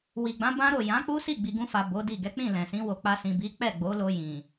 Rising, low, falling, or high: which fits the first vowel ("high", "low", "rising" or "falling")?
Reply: low